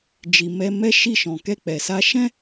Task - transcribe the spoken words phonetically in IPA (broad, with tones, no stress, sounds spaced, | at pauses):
d͡ʒ i˨ m ɛ˧ m ɛ˦ ʃ i˦˨ ʃ ɔ̃˨ k ɛ˧ k͡p ɛ˨ s a˧ ʃ ɛ̃˦